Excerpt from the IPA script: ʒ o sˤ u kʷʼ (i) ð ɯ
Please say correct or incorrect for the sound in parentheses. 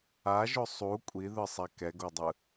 correct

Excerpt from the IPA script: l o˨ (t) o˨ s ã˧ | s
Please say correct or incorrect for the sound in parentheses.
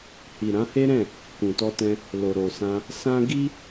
incorrect: ɾ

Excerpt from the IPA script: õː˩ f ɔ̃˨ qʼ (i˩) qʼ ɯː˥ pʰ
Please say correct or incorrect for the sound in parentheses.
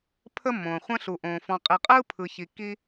incorrect: i˨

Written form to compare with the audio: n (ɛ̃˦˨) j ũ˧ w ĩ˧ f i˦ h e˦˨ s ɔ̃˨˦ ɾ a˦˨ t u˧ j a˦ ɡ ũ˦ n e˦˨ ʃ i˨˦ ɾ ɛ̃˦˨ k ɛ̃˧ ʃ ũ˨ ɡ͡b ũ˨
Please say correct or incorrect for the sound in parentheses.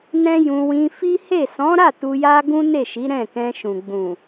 incorrect: ɛ̃˦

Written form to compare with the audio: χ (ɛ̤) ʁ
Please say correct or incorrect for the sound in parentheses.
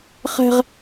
correct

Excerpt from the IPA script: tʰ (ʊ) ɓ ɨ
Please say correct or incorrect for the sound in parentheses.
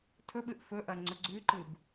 incorrect: ɵ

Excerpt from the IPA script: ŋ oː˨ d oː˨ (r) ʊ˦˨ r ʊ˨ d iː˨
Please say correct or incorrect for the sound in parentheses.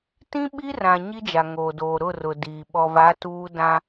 incorrect: ɾ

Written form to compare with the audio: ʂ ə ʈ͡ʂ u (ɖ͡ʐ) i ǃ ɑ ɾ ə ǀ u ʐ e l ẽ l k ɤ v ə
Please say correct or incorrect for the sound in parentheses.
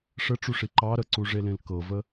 incorrect: ʂ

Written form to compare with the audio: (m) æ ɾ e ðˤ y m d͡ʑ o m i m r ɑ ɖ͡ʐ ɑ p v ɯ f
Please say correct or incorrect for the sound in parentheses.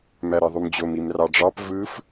correct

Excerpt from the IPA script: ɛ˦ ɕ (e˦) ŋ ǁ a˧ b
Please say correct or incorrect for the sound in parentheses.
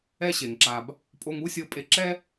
incorrect: e˨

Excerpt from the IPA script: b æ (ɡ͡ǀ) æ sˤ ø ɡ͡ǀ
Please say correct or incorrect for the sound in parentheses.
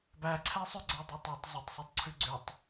incorrect: ǀʰ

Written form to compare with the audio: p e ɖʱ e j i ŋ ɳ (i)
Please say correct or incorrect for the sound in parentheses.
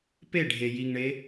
incorrect: e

